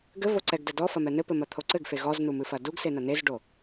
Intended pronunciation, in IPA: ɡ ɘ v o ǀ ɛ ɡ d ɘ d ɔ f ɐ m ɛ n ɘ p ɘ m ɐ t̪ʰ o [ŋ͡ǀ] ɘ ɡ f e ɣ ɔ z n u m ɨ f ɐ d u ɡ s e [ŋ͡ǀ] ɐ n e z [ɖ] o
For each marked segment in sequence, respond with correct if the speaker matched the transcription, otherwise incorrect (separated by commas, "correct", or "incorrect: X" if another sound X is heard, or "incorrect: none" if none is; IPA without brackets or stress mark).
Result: incorrect: ǀ, incorrect: n, correct